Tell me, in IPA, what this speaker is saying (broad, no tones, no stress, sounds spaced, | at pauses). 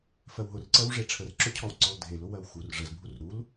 f ɜ w ɦ ʊ r ǀ ɜ w ʐ e ʈ͡ʂʰ ə r ǁ ʊ cʰ ɔ w ǀ ɔ l dʱ e l ʊ w ɜ w x u r ʐ ə z bʱ u r ɾ u l